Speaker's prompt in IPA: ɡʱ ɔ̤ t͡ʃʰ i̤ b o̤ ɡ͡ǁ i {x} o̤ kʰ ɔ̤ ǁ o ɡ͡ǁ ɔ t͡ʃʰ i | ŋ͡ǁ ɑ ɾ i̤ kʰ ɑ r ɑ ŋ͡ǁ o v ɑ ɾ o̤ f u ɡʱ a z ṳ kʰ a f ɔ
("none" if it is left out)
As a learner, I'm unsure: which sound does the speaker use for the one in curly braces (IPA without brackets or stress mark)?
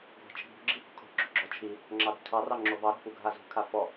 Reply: h